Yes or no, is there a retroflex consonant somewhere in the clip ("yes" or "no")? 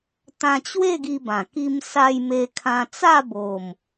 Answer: no